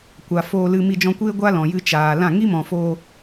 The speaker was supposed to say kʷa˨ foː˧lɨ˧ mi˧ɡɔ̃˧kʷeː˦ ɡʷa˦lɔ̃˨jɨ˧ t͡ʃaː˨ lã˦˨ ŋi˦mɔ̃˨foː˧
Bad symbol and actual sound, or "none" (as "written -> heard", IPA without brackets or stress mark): ɡ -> d͡ʒ